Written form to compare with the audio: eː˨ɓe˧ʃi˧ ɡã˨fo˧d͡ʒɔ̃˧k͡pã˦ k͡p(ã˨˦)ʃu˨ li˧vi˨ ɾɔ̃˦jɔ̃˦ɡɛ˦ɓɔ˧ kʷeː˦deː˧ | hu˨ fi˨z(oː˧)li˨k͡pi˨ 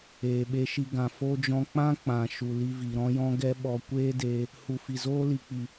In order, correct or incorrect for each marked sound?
incorrect, incorrect

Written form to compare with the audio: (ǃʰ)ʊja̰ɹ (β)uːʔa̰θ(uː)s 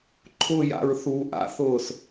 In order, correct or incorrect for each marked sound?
correct, incorrect, incorrect

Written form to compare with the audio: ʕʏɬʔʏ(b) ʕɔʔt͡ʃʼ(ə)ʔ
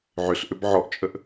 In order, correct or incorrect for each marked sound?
correct, correct

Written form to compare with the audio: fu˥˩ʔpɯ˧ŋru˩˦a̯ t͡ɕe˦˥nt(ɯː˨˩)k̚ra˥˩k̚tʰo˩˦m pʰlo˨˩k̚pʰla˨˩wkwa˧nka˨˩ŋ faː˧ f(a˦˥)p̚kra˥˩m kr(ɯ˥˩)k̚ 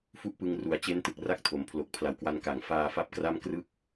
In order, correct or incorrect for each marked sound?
incorrect, incorrect, correct

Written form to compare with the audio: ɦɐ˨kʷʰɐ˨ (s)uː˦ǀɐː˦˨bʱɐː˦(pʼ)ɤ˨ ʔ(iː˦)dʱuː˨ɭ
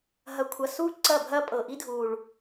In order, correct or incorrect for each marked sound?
correct, correct, incorrect

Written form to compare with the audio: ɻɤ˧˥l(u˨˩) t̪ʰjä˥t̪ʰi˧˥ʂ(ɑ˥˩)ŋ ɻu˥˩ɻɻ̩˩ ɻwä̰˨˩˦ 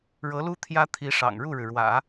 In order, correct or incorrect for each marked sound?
incorrect, incorrect

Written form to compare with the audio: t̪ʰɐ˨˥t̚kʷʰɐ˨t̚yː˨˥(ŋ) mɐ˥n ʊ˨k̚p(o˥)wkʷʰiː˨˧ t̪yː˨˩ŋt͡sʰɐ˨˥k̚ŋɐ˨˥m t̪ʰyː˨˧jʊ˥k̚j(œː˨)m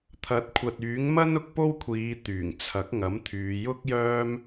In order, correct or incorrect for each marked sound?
correct, correct, incorrect

